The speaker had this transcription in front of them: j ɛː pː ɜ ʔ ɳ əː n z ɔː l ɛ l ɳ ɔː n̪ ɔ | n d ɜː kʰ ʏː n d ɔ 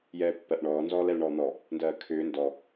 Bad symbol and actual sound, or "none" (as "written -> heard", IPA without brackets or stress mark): əː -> ɔː